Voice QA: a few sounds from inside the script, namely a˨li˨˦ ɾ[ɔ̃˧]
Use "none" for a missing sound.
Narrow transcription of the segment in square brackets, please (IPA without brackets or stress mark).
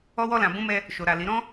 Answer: ɔ̃˦